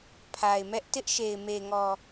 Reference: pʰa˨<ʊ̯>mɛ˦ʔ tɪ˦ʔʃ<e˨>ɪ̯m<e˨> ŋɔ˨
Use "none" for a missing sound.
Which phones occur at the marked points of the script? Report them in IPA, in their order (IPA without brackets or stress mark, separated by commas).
ɪ̯, e˨, e˨